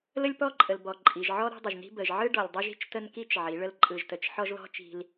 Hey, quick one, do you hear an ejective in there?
yes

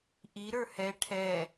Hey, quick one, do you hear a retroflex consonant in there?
yes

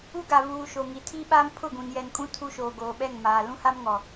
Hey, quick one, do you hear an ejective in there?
yes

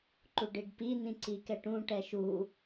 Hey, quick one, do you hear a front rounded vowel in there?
no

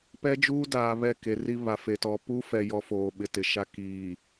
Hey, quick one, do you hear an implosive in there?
yes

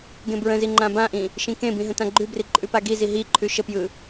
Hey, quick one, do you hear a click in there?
yes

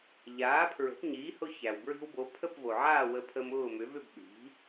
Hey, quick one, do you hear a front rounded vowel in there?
yes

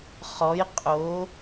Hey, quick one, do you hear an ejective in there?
yes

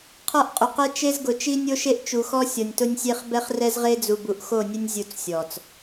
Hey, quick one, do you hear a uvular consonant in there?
yes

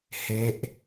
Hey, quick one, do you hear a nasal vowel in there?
no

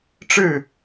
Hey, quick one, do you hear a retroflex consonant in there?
yes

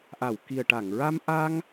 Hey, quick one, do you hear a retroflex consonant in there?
yes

